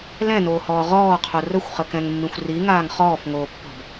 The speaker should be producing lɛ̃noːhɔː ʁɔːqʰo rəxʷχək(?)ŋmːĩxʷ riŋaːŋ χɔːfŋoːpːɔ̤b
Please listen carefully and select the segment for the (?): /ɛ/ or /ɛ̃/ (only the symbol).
ɛ̃